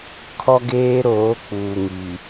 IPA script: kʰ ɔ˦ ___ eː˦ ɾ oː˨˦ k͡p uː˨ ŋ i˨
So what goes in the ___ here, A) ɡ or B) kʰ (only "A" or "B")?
A